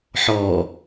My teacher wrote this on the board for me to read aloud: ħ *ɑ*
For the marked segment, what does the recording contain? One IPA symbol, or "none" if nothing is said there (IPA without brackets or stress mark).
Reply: ɔ